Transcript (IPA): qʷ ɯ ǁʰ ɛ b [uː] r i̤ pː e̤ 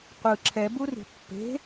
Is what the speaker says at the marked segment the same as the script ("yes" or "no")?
no